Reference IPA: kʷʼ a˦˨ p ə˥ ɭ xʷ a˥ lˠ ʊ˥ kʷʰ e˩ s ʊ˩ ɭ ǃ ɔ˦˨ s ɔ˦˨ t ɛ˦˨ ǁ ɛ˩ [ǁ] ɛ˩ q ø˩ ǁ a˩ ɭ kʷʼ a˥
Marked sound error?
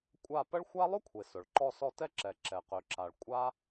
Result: no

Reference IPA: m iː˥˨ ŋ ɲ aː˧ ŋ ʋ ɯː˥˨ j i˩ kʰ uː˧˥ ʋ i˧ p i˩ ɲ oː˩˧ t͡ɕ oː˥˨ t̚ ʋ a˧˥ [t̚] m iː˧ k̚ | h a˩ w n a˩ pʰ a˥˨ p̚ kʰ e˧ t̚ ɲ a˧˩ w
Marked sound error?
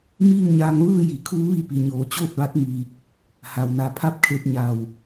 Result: no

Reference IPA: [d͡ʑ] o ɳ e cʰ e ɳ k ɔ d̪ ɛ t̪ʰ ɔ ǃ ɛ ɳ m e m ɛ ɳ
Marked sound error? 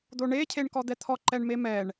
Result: yes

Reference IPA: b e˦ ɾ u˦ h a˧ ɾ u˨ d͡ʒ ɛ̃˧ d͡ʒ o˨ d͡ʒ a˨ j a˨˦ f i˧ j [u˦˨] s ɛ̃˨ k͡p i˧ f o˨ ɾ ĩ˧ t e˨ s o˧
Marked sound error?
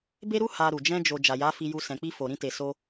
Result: yes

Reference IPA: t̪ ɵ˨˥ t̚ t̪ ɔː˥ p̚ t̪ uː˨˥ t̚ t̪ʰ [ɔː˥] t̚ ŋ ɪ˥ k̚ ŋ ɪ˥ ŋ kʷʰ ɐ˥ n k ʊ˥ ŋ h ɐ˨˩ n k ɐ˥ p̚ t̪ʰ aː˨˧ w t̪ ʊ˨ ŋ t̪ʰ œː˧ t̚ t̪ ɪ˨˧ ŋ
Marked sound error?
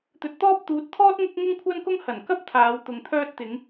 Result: no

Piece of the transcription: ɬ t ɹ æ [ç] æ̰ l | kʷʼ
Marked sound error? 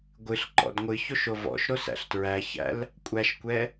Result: no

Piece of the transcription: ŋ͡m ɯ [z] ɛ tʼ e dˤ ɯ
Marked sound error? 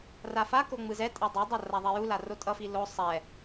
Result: no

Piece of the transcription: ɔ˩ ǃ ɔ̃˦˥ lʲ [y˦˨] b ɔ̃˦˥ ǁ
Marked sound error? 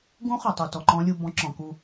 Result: yes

